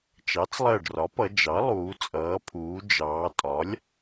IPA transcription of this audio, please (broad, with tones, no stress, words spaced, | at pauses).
t͡ʃɑ˩˥t͡slˠɜ˧˩ɖrɒ˩˥pʌ˩˧ d͡ʒɑ˩˥lˠuː˩˧ t͡sʼʌː˩˧pʰuː˩˧ d͡ʒɑː˩˧tʼɒ˩˥lʲ